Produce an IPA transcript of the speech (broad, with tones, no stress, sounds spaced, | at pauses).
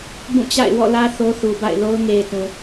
b ũ˦˨ t͡ɕ a̰˦˨ ɪ̯ w ɔ̰˦˨ l ä˦ θ o˦ θ u˨ b a̰˦˨ ɪ̯ l o˦ ʊ̯ ŋ e˨ ɪ̯ t ũ˨